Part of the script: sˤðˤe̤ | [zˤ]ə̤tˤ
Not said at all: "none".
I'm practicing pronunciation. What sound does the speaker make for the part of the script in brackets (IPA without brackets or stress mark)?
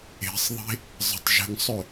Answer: zˤ